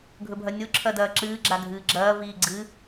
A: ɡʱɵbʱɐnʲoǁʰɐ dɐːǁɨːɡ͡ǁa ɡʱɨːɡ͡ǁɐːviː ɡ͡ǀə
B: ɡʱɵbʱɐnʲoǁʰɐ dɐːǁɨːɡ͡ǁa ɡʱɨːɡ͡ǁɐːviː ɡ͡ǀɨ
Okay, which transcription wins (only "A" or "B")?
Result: B